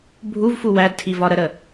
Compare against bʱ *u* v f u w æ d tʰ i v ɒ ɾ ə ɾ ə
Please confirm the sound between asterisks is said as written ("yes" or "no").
yes